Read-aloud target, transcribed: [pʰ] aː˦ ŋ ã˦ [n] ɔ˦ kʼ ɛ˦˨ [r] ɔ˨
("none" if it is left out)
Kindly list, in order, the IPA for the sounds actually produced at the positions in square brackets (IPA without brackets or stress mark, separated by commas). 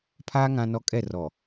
pʰ, n, r